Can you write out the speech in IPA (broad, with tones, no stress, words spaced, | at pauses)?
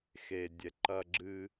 xe˧dʲɛ˧ ǃɐ˧ɡ͡ǁɨ˧